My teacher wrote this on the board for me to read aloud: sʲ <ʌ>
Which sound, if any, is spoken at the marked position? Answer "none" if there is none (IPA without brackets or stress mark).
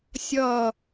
ʌ